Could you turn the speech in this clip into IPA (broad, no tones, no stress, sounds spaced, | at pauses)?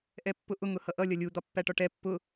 ʔ ɛ pː ʊ ʔ ʊ ŋ ʊ h ʌ ʔ ʌ lʲ ʌ lʲ u d̪ ɒ pː æ ʈ ɔ ʈ ɛ pː ʊ